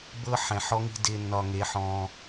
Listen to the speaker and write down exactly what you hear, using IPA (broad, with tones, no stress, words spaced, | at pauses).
bɤ˦ħɛ̃˨ħɔ˦ŋi̤˦ dɪ˦ nːɒ˧ŋe˨˦ħɔ̃˧